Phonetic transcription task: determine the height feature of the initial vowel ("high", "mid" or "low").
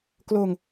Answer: mid